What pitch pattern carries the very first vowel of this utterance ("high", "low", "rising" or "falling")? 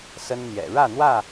high